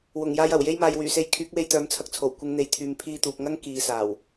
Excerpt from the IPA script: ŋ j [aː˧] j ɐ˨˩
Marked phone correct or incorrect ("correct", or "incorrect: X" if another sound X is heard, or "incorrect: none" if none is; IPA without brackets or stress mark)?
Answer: correct